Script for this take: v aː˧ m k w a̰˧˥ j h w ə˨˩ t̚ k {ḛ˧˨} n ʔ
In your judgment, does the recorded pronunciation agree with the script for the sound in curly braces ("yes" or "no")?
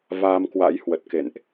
yes